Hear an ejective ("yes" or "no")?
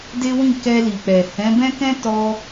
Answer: no